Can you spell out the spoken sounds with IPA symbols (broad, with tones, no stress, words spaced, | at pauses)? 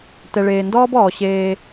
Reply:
tɛ˨ɭeː˨ndɔː˦bɔː˨ ɕeː˦